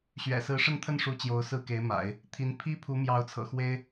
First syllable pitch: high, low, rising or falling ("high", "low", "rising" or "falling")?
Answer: low